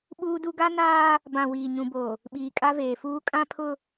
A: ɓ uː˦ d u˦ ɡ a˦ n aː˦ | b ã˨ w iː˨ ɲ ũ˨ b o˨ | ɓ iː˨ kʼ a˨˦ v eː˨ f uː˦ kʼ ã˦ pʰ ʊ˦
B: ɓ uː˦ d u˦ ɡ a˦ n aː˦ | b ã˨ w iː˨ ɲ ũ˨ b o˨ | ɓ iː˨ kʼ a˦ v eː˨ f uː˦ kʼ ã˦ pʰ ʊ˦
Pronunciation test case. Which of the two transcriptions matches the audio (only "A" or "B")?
B